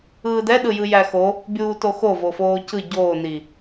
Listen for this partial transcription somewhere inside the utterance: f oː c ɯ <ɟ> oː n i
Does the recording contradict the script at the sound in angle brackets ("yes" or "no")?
no